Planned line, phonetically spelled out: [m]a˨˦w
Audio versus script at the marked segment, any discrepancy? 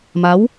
no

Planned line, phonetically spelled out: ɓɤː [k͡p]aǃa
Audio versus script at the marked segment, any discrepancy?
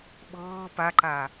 yes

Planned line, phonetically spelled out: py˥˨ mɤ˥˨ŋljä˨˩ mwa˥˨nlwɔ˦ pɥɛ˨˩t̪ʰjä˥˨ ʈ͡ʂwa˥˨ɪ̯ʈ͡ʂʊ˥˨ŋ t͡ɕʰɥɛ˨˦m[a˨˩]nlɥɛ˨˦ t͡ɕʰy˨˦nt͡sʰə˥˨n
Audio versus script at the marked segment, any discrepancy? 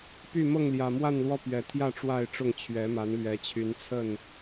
yes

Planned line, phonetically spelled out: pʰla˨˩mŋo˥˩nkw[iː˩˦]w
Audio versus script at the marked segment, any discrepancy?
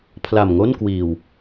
yes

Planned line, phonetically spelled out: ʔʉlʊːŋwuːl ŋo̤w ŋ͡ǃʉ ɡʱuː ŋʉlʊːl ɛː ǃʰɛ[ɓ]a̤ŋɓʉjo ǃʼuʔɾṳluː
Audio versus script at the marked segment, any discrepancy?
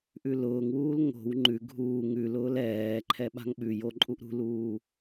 no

